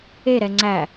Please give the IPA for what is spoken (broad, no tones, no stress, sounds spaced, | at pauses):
e ɾ ɛ ŋ͡ǀ æ